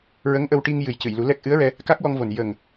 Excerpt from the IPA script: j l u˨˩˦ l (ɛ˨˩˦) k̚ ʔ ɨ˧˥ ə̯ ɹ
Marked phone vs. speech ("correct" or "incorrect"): incorrect